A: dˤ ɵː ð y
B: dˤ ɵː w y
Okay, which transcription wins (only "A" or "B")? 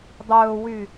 B